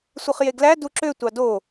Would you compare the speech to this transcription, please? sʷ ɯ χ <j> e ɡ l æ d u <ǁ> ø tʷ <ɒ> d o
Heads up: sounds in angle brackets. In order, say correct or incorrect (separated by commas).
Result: correct, correct, incorrect